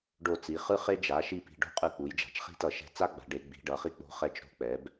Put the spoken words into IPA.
ɖ o˧˩ t͡s i˩˧ χ ɯ˦ χ e˦ d͡ʒ a˩˧ ʃ i˧˩ p i̤˩˧˩ ɖ o̤˦ qʼ ɯ˧˩ k͡p u˩˧ j d͡ʒ a̤˩˧ t͡ʃ χ i̤˦ t ʌ˧˩˧ ʃ ɛ̤˧˩ t͡s a˦ ɡ͡b a̤˩˧ ɖ e˩˧ ɡ͡b i̤˩˧ ɖ ʌ˩˧ χ i˨˥ k͡p o̤˨˥ χ ɛ˧˩ t͡ʃ ɾ o̤˨˥ k͡p ɛ˩˧ b

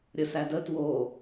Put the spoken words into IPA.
ɾʲ ə s æ d ə t w o

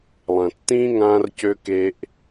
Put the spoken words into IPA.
lˠ ɐ̃˨ tː ĩː˦ ŋ ãː˦ r c ø˦ k e˦ ʔ

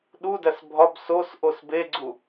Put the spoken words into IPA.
ɗ u d æ s bʱ ɒ b s o s ʔ o s b e ɡ͡ǀ u

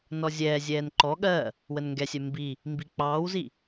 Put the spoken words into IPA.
n ɔ zʲ ɛː zʲ ɛː n ǃ ɔ ɠ ɜ | w ə n ŋ ɡ ɛ sʲ ɛ m b i | m b i k͡p ɑː w z i

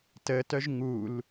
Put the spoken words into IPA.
t ə t œ ʒ ŋ u l

